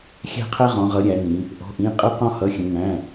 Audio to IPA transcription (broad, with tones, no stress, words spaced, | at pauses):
xʲæ̤˦qʰæ˦ʁɔ̃˩˧ʁʌ˩˧ ɾʲæ˩˧nĩ˩˧ | ʔɔ̤˩˧˩ʔĩ˩˧˩ qʼə˦qɔ̃˦hʌ˩˧˩xʲə̃˩˧ ŋæ̃˩˧˩